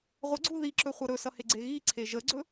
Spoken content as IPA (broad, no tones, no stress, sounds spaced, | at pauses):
ʁʷ ə ɡ͡ǀ u ð i ǁ ɵ χʷ ʌ ɾ ɵ s ʌ h e ɡ͡ǀ e ɣ i ǀʰ e ʒ ə ɡ͡ǀ ɵ